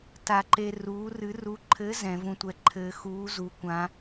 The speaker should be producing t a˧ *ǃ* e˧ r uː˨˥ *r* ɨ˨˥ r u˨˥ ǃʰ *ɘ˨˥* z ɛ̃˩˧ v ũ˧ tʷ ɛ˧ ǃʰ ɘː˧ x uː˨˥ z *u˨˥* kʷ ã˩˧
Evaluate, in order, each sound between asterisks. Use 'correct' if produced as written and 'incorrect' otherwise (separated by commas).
correct, correct, correct, incorrect